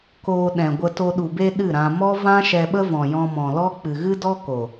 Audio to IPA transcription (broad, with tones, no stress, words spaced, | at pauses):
koː˧ɗɛ̃˨ɡʷə˧ to˧ɗu˨ be˧ ɗɨ˦˨ɾã˧ mɔ˦vã˦ ʃɛ˧ɓə˦vɔ̃˨ jɔ̃˧mɔ̃˨lɔ˦k͡pɨ˨ ɣɨ˦dɔ˦ko˨